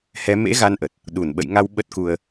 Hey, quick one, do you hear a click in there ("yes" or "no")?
no